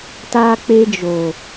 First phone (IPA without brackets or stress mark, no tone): t